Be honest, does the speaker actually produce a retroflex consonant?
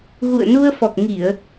no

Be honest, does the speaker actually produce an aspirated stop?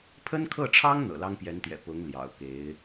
yes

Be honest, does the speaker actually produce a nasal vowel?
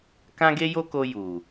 yes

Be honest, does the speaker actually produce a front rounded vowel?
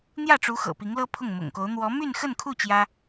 yes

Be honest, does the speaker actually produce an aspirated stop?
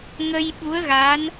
no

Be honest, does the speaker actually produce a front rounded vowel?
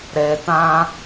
no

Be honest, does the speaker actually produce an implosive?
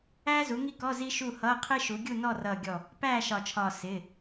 no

